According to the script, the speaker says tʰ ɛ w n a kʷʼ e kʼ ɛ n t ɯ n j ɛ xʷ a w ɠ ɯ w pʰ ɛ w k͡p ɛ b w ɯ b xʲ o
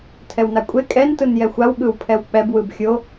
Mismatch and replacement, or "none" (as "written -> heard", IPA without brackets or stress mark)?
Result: none